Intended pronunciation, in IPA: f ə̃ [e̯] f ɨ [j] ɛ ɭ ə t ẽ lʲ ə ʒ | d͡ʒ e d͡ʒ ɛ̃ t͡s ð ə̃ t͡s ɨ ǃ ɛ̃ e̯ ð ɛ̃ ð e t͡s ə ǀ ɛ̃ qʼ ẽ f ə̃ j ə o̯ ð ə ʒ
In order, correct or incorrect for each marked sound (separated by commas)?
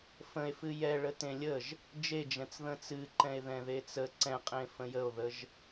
correct, correct